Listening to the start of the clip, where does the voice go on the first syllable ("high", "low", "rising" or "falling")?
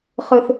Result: low